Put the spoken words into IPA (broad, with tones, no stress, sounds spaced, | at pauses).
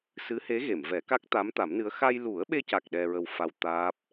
s ɨ˧˥ h e˧˥ ɣ e˨˩˨ m v ɛ˨˩˦ k a˦˥ k̚ t̪ a˧˥ m t̪ a˨˩˦ m n ɨ˧˥ ə̯ x a˧ j l u˨˩˦ ə̯ ɓ e˧ c a˨˩ k̚ ɗ ɛ˧ ɹ ə˧ w f a˧ w t̪ aː˦˥ p̚